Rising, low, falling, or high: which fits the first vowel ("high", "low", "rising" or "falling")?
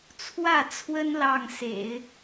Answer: falling